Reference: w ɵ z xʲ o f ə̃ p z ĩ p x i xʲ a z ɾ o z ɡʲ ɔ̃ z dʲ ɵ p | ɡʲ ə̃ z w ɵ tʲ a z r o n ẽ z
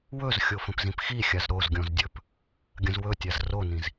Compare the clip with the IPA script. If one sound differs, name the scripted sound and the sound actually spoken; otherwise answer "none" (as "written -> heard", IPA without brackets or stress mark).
ẽ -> ĩ